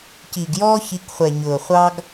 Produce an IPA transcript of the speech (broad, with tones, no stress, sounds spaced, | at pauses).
c iː˨ ɡ j ɔː˦ ç i˨˦ k χʷ ɛ˨ ɲ ʊː˨ χʷ ɑ˦ ɡ